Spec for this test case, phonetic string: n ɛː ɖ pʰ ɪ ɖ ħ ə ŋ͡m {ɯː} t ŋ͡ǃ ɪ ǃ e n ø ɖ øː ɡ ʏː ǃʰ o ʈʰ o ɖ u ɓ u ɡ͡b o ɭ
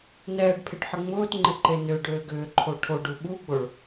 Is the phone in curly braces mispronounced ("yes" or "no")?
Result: yes